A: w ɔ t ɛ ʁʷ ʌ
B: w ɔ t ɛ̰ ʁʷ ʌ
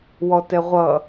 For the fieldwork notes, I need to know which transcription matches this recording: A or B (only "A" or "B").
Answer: A